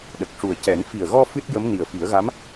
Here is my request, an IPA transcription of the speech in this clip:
ɗ ə˨˩ k̚ ʂ u˨˩ ə̯ c ɛ˨˩˦ n f i˨˩ ə̯ ɣ ɔ˧ f ɨ˦˥ t̚ j ə˧˥ m n i˨˩ ə̯ f i˨˩˦ ə̯ ɣ a˧˥ m

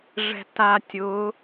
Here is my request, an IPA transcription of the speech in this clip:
ʐ ɛ̤ t a tʲ ʊ

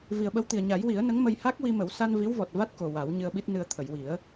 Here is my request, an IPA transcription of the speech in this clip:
v i˨˩ ə̯ ɓ ə˧˥ w t̪ i˨˩ ə̯ ɲ a˨˩˦ j w i˨˩˦ ə̯ n ə˧˥ ŋ m ə˧ j h a˦˥ k̚ w i˧ m ə˨˩˦ w s a˧ n v i˧˥ w v ɔ˨˩ t̚ v a˦˥ t̚ k o˨˩ w a˨˩˦ w ɲ ɨ˧ ə̯ ɓ i˦˥ t̚ n ɨ˧ ə̯ t̪ʰ ə˨˩˨ j w i˨˩˦ ə̯

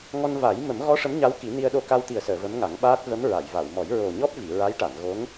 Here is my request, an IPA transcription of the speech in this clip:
ŋ ɔ˧ n v a˨˩˦ j m ə˨˩˦ m ɣ ɔ˧˥ ʂ ə˧˥ m ɲ a˧˥ w k i˨˩˦ n i˧ ə̯ ɗ o˧ k a˧ w t̪ i˨˩ ə̯ s əː˨˩˨ v ə˧˥ m ŋ a˨˩˦ ŋ ɓ aː˦˥ t̚ v ə˧˥ m ɹ a˨˩˨ j v a˨˩˨ w m ɔ˨˩˦ j ɹ o˨˩ ɲ ɔ˦˥ p̚ v i˨˩˨ ɹ a˧˥ j ʈ a˨˩˨ n ɣ o˧˥ ŋ

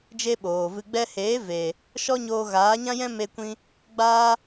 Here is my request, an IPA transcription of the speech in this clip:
d͡ʒ e˦ ɓ oː˨ v ɨ˧ ɡ͡b ɛ˧ h eː˨˦ v eː˨ | ʃ ɔ˦ ɲ oː˧ ɣ aː˨˦ ɲ ã˦ j ɛ̃˦ m e˧ kʷ ĩ˧ | ɡ͡b aː˦

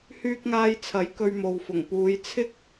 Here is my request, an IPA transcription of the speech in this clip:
h yː˧ k̚ ŋ aː˧ j t͡sʰ ɐ˨˥ j k ɵ˧ ɥ m o˨ w f ʊ˨˩ ŋ p uː˨˧ j t͡sʰ ɪ˥ k̚

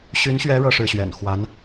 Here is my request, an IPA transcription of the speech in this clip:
ɕ y˧˥ n ɕ ɥ ɛ˧˥ ɻ ɤ˥ ʂ ɻ̩˥˩ ɕ ɥ ɛ̰˨˩ n x w a˧˥ n

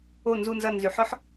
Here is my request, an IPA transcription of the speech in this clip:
o˧˩ n z u˧˩ n z ɐ˧˩ n z y˩˧ ħ ɔ˥ ħ

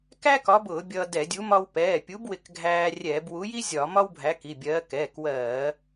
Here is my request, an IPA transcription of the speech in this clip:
k æ˥ k ɒ˨˥ b ʊː˧˩˧ bʲ ʌː˧ d ɛ˧˩˧ dʲ u˨˥ m ɒ˧ w p ɛː˩˧˩ pʲ u˨˥ b w ɪ˧ k ɡʱ æː˧ rʲ ɛː˧˩˧ b w u˨˥ j i˥ zʲ ɒ˧˩˧ m ɒ˥ w bʱ æ˨˥ k i˩˧˩ bʲ ɜː˨˥ k ɛː˩˧˩ k w ɜː˧˩˧

